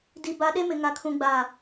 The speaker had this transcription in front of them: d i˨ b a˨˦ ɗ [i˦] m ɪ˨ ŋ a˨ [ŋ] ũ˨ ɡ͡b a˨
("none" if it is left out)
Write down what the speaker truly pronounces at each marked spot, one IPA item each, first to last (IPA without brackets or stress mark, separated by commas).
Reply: e˦, kʰ